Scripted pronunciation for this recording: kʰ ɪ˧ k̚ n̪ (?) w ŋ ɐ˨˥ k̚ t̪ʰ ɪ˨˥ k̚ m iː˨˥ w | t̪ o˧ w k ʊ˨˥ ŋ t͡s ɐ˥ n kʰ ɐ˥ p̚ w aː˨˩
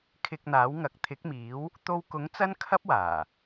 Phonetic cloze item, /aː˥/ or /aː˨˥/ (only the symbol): aː˨˥